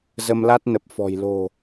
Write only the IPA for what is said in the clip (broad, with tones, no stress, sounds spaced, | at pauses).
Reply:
z ə˧ m l a˦˥ t̚ n ə˨˩ p̚ f ɔ̤˨˩ j l o̤˨˩